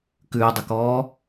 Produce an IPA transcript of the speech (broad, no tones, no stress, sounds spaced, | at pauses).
k ʉː dˤ ə k ɔː